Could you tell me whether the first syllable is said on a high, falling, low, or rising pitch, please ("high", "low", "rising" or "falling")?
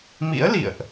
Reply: rising